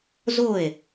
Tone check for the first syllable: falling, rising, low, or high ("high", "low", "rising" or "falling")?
falling